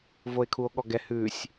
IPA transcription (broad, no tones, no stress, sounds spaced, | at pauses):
v o e̯ kʰ u o̯ ɠ ɔ ɡ ɛ h ʉ sʲ